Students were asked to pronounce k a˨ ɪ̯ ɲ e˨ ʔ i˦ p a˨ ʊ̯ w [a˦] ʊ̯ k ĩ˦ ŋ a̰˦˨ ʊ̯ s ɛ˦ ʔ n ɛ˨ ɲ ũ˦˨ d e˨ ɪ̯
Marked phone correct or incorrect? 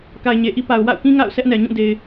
incorrect